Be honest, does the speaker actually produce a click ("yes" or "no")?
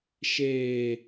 no